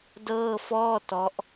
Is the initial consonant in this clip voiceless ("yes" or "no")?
no